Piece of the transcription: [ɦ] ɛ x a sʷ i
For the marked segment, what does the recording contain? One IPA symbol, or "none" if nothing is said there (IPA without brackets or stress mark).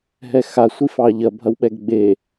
ɦ